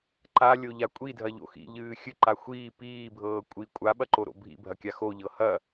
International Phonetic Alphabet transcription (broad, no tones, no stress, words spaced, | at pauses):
ǃalʲoʎa kʷʼidʱɐʎo̰ xḭʎɨː xʲɨǃa xʷiː piːbʱɤː kʷʼi kʷʼaɓɐǃoɾo̰ bʱḭbʱɐkʲa xoʎɤ hɐ